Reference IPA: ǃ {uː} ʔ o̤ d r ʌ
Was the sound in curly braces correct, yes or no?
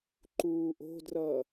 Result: yes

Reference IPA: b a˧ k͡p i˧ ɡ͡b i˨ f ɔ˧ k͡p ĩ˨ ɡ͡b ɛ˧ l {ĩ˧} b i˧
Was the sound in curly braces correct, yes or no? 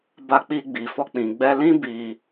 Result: no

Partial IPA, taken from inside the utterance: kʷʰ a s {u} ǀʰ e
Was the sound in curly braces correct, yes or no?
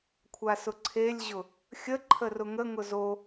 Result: no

